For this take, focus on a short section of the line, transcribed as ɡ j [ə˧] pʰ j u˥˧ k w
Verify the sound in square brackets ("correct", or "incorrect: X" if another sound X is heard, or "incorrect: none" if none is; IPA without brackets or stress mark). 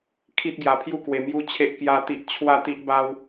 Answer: incorrect: a˧